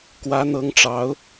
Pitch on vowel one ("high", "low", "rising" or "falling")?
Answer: rising